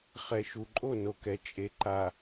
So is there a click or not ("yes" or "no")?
yes